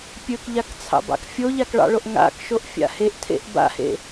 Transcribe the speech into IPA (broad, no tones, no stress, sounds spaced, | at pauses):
pʲ ɵ k ʎ a k t͡sʰ ɑ̰ b ɑ̰ k fʲ o ʎ a k ɭ ɑ̰ ɭ o ʔ ŋ a̰ k ʃ o ʔ fʲ a̰ h e ʔ tʰ ḛ ʔ b a̰ h ḛ